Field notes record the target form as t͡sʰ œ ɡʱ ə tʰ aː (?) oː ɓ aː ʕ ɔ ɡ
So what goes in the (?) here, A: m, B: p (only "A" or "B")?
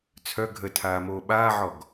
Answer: A